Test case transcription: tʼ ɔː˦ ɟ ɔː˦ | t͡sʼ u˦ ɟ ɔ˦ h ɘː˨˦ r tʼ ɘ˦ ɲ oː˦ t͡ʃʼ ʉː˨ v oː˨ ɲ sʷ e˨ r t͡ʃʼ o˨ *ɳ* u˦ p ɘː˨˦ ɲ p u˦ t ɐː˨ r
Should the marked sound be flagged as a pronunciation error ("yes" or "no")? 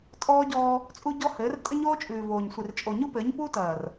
yes